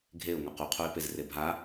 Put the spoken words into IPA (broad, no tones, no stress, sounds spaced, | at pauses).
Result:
ɡʱ e ʊ̯ ŋ ɒ q u qʰ u ɪ̯ p e z r e bʱ a